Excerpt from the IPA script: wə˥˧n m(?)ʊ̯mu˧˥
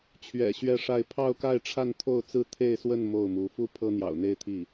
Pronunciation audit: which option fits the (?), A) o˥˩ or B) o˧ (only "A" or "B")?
A